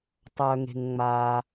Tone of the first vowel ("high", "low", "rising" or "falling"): low